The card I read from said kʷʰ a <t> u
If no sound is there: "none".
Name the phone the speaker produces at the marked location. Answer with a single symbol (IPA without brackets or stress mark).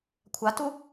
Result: t